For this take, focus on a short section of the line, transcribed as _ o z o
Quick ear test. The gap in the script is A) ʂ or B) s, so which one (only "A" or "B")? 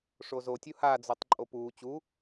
A